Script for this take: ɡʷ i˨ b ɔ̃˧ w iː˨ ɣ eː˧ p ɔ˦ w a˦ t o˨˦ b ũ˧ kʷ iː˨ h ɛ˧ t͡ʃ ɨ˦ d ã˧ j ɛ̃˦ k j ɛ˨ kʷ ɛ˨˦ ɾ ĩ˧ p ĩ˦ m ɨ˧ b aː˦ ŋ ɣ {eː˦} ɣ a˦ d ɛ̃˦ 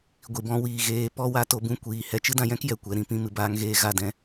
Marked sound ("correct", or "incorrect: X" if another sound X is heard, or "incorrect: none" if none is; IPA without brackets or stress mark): correct